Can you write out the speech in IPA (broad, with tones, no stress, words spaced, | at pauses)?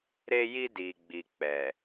ɾe˧ji˧ di˨ɡ͡bi˨k͡pɛ˨